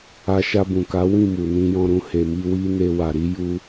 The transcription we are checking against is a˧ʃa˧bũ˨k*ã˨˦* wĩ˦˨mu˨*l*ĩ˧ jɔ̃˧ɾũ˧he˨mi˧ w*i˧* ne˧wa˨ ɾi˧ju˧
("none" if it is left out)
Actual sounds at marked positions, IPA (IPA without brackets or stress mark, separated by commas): a˨˦, n, i˧